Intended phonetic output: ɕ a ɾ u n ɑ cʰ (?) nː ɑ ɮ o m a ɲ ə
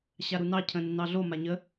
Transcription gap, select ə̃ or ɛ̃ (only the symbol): ə̃